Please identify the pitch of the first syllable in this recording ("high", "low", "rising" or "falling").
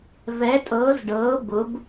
rising